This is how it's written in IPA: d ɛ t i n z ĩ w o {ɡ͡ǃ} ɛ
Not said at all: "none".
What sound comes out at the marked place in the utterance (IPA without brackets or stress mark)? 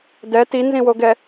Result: ɡ